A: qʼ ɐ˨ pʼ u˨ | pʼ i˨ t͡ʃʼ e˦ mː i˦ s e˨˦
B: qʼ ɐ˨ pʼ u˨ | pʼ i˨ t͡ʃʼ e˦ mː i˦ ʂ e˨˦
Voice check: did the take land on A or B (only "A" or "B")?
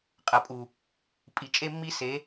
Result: A